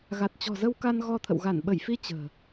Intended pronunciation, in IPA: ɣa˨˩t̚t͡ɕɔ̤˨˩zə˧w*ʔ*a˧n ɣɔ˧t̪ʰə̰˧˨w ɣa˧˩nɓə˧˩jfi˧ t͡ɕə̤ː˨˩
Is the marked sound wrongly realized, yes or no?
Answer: yes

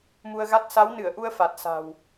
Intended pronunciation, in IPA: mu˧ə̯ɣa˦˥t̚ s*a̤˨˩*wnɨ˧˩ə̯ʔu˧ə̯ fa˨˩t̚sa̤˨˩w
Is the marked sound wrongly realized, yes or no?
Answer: yes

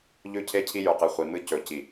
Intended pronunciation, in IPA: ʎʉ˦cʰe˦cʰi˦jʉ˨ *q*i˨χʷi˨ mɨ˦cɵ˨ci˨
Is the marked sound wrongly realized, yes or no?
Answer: no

